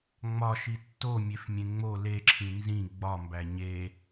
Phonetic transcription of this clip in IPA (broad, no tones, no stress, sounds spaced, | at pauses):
ŋ͡m ɒ ʃ i tː o mʲ e f mʲ ẽ ŋ͡m o l e ǁʰ ĩ n z ĩ ɡ͡b ɒ m b æ ɲ e